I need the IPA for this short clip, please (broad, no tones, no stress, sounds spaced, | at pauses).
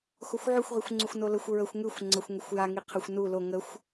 x o xʷ ʕ ʉ xʷ ʁ i xʷ ŋ͡ǀ u xʷ n o l ə xʷ ɹ ə xʷ ŋ ʉ xʷ ŋ͡ǀ ə xʷ ŋ ə xʷ j a ŋ i qʰ ə xʷ n u l o ŋ ə xʷ